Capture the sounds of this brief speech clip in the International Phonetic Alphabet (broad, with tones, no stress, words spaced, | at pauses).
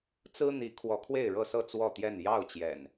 t͡sɹ̩˦ n̪i˨˦ kʰwɔ˨˦kʰwe˥˨ɪ̯ɻɤ˥˨sɤ˥˨ t͡swɔ˥˨t̪jɛ˥˨n jɑ˥˨ʊ̯t͡ɕjɛ̰˨˩n